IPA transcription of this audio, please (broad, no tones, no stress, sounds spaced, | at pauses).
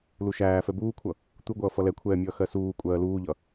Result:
l u ʃ æː f ɛ b uː kʷʰ ʌ | t̪ u ɡʷ ʌː f ʌ l ɛ kʷʰ ɛː mʲ ʌː x ɜ s uː kʷʼ ɜː l uː ʎ ʌ